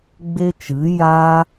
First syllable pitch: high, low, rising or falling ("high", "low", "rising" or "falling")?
high